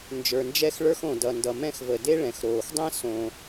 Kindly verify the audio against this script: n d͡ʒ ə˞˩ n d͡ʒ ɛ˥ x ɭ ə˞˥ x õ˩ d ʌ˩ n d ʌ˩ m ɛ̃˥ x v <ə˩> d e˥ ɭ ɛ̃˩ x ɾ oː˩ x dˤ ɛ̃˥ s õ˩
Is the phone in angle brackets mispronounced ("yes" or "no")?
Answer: no